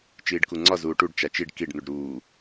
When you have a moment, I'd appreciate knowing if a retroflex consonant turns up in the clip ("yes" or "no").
yes